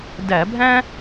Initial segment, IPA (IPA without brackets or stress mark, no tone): d